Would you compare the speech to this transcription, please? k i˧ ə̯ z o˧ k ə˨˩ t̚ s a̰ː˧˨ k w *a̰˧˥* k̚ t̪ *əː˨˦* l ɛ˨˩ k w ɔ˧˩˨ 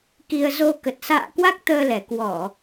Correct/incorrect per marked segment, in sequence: incorrect: a˦˥, incorrect: əː˧

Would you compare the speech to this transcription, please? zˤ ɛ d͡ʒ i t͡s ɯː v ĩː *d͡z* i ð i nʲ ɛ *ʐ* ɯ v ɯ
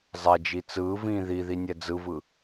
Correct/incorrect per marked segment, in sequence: incorrect: ð, incorrect: d͡z

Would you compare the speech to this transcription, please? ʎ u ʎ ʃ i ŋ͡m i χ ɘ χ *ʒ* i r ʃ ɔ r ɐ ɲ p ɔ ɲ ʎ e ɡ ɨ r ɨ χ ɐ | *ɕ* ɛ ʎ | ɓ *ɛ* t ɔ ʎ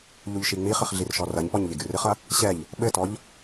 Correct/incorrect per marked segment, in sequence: incorrect: ɮ, correct, incorrect: ɘ

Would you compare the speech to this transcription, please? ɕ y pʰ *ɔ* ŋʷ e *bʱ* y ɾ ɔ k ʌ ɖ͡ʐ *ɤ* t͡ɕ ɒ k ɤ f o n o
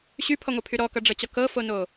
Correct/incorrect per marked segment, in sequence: correct, incorrect: pʰ, correct

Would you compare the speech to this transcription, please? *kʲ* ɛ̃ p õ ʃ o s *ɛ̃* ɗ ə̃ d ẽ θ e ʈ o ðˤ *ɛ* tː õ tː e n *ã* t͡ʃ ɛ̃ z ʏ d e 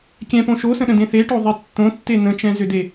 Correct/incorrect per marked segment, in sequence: correct, incorrect: ə̃, correct, incorrect: ə̃

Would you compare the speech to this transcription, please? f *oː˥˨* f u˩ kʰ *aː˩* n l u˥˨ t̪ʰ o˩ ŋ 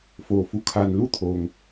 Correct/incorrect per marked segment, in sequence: incorrect: oː˩, correct

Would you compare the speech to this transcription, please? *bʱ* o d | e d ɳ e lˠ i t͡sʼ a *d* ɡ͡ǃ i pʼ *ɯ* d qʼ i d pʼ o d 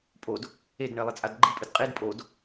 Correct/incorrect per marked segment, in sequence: incorrect: pʼ, correct, correct

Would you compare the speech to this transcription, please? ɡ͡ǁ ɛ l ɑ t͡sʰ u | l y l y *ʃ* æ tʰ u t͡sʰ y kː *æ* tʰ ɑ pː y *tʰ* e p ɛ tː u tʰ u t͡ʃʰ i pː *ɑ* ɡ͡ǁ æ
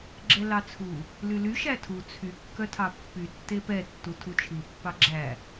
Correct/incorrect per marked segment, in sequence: correct, incorrect: œ, incorrect: tː, correct

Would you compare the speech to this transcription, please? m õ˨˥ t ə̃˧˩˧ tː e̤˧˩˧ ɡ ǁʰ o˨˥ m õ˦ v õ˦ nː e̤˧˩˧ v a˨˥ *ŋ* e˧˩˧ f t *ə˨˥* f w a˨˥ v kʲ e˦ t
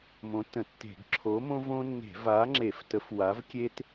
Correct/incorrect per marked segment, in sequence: incorrect: ŋ͡ǁ, correct

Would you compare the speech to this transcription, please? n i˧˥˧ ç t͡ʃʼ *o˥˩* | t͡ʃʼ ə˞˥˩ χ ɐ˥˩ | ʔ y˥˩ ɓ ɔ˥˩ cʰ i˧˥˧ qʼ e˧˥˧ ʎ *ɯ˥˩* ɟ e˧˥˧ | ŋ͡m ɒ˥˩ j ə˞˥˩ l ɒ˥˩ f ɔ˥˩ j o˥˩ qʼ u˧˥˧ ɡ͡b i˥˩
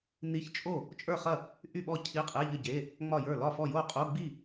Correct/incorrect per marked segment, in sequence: correct, incorrect: ə˥˩

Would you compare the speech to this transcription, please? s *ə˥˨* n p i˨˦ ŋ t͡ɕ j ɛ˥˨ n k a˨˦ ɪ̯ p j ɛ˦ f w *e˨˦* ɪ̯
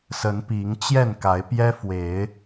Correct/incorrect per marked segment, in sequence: incorrect: ə˨˦, correct

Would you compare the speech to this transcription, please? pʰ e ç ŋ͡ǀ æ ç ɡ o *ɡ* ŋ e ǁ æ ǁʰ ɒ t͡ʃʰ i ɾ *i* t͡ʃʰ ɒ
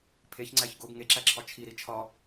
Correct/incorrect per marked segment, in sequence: correct, correct

